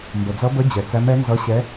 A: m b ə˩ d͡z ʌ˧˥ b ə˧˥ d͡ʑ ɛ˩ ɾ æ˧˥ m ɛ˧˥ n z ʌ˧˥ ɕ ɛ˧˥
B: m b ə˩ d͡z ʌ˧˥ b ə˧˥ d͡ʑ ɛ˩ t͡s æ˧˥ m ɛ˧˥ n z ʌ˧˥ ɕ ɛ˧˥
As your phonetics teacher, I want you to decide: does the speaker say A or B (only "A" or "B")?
B